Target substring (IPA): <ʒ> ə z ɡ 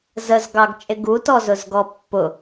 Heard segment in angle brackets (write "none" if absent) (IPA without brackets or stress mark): z